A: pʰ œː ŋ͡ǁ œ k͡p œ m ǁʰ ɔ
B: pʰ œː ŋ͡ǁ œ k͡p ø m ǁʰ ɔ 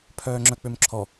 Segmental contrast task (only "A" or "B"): B